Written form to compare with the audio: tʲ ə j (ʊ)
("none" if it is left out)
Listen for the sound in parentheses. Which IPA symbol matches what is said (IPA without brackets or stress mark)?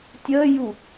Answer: u